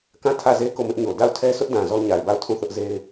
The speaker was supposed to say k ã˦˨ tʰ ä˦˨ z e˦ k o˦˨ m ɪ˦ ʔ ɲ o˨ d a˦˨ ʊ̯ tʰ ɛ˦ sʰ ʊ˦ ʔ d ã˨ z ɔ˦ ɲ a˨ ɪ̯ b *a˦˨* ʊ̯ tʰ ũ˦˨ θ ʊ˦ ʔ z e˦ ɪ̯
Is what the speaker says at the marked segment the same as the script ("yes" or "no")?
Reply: yes